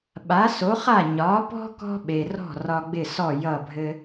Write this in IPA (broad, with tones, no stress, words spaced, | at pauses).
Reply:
ɓa˩˥so˩˥χa˥˩ ɲɒ˩˥pɔ̤˥ kɔ̤˥ɓe˩rɔ̤˥˩ rɒ˧ɡ͡bɪ˥˩sɔ˥˩ jʌ˥˩bʱɘ˥